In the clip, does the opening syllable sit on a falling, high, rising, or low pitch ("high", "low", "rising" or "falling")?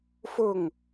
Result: falling